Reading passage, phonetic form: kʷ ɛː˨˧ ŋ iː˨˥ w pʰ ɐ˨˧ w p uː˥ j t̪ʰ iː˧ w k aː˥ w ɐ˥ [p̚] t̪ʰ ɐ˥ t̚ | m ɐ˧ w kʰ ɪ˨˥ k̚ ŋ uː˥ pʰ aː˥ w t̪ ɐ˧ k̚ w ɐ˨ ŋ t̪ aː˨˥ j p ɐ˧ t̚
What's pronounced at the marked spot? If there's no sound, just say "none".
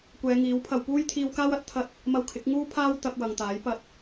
t̚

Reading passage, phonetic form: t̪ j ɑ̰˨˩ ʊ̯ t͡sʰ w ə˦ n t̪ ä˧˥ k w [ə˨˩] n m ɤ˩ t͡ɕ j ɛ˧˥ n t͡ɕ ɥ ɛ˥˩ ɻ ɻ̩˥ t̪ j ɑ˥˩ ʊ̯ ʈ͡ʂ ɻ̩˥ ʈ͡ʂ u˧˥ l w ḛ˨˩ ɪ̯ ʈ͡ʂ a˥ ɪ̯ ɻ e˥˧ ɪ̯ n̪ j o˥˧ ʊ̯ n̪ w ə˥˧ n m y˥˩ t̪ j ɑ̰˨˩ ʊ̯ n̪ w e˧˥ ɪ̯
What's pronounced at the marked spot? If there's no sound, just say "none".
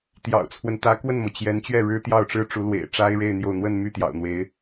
ə˥˩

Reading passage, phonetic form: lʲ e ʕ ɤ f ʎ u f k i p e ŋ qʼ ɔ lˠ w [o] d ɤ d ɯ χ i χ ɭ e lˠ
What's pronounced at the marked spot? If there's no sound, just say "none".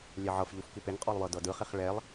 ɤ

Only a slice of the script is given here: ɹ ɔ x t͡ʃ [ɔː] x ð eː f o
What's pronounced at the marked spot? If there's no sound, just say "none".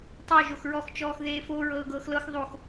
ɔː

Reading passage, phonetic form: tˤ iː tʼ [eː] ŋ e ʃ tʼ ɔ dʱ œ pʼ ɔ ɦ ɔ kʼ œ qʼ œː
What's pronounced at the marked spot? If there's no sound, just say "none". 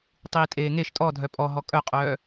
eː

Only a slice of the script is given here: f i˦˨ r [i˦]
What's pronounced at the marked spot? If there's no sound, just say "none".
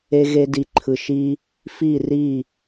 i˦˨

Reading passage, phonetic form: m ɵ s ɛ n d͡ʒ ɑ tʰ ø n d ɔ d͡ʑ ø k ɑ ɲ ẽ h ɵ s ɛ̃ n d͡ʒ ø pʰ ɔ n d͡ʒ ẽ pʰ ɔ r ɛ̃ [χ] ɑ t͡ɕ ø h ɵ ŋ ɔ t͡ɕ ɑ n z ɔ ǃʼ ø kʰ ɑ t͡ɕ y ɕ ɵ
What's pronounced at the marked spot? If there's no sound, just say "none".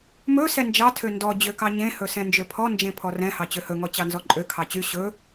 h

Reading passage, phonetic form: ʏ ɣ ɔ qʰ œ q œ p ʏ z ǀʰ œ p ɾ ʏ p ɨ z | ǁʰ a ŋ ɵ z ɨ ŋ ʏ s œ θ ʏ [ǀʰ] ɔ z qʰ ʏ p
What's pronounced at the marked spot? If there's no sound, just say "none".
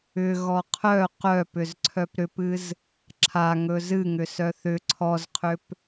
ǀʰ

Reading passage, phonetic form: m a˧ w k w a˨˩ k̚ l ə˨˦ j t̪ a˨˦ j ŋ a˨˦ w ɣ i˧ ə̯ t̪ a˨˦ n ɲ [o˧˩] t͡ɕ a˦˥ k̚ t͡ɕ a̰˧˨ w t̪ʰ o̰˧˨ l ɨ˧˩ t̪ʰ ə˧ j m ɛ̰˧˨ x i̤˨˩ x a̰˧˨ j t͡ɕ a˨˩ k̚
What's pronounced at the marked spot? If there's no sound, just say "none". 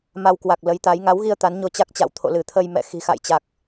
o˧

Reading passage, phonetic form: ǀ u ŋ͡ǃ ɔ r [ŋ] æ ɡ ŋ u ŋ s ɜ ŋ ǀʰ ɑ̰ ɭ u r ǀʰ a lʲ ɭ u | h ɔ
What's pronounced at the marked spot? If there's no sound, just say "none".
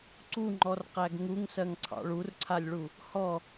q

